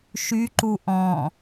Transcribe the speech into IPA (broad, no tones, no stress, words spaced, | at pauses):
ʃyǃu ʔɔ̃